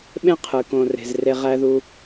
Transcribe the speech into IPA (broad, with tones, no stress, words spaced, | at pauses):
ɓẽ˥qʰɯ˩kõ˨ re̤˨zre˦ʁæ˥ðu˦